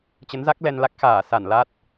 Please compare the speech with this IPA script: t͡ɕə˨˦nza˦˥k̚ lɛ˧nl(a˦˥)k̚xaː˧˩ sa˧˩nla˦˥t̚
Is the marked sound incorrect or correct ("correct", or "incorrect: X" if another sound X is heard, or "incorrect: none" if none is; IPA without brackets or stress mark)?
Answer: correct